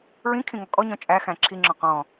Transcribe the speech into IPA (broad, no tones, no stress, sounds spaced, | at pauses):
ɹ ĩ kʰ ĩ ŋ ɔ kʼ ɔ ɲ ɔ̃ t͡ʃʼ æ x æ̃ ǁʰ i ŋ͡ǁ ɔ̃ q ɔ̃